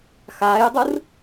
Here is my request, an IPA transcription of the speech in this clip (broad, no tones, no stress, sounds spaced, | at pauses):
x aː j dˤ ɯ r